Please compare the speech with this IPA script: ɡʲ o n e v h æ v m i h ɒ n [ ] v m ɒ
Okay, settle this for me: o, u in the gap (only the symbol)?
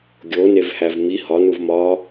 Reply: u